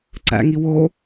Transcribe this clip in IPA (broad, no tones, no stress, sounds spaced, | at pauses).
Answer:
ǀ æ̰ ŋ i w o